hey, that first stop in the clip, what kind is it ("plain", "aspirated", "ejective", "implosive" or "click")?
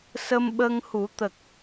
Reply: implosive